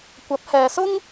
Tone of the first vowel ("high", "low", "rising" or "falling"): rising